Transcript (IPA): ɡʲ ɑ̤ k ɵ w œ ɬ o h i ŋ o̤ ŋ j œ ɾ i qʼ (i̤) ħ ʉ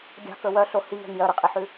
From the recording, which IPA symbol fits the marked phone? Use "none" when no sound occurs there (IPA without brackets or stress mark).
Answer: i